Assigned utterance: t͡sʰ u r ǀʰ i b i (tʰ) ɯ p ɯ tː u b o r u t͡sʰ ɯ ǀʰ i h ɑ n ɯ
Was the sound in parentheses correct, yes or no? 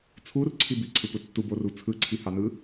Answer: no